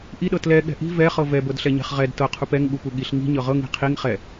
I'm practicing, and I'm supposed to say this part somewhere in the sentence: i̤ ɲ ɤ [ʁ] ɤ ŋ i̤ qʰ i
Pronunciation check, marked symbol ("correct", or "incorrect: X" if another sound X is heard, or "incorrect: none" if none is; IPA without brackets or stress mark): correct